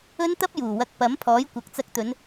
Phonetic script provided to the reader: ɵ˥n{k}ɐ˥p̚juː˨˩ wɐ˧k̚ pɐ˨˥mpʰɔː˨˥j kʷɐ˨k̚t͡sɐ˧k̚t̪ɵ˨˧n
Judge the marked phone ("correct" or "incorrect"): incorrect